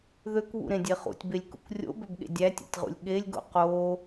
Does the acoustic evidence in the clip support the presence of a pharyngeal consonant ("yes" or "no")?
no